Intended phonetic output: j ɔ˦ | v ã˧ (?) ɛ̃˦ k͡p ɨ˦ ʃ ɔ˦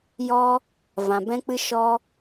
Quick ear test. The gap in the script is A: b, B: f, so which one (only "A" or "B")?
A